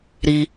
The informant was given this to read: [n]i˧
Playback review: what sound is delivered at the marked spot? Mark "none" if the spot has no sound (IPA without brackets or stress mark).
ɾ